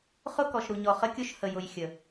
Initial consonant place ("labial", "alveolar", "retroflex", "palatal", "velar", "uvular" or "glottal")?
uvular